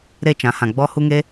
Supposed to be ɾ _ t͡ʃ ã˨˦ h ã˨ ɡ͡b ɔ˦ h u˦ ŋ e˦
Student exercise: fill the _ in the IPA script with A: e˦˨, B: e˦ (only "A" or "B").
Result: A